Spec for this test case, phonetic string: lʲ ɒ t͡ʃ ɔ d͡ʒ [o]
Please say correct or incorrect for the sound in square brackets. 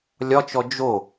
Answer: correct